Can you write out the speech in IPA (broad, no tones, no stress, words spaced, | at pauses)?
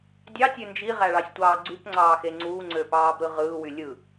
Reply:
dʲɑtʲø nd͡ʒiʁæɭɑsʲtʷɑː ɡ͡ǀypŋ͡ǀɑːxe ŋ͡ǀuːŋ͡ǀøpɑːbɾɯ ʁɯːwy lʲɯ